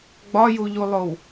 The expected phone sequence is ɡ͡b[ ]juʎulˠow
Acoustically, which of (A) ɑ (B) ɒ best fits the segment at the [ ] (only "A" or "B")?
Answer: B